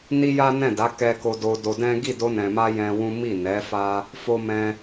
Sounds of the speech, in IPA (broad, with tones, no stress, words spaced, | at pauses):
ni˦ja˦nɛ̃˦˨da˨˦ kɛ˦ ko˧do˧do˧dɛ̃˦ ɡi˦˨do˧nɛ̃˨ma˧ jɛ̃˧wũ˦ mi˦˨nɛ˨˦fa˦ | fo˧mɛ̃˧